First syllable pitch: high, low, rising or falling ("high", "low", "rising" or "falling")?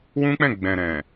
high